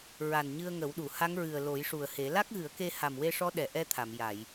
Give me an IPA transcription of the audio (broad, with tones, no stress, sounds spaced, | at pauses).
ɹ a˨˩ n ɲ ɨ˧ ə̯ ŋ ə˨˩˦ w ɗ u˨˩˨ h a˧˥ ŋ ɹ ɨ˨˩ ə̯ l o˨˩˦ j ʂ u˨˩ ə̯ h e˨˩˦ l a˦˥ k̚ ɣ ɨ˨˩˦ ə̯ k e˧ h a˨˩ m w e˧ ʂ ɔ˧˥ ɗ ɛ˨˩ ʔ ɛ˧ t̪ʰ a˨˩˨ m j a˨˩˨ j